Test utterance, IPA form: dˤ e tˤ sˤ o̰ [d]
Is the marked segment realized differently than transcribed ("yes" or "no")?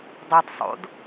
no